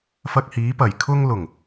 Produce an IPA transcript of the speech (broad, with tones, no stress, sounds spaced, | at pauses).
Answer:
f ɐ˧ k̚ h iː˨˥ p ɐ˨˩ j kʰ ʊ˧ ŋ l ʊ˨˩ ŋ